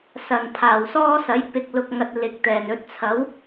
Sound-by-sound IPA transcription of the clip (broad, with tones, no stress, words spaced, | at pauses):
sɐ˨˩n pʰaː˨˩wsɔː˥sɐ˨˥j pɪ˧k̚ lʊ˨k̚ŋɐ˨t̚ lɪ˨k̚t̪ɛː˨˩nɵ˧t̚ t͡sʰɐ˨˥w